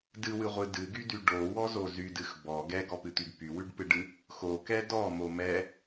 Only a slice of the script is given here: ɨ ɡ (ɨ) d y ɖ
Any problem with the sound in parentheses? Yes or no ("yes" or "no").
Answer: yes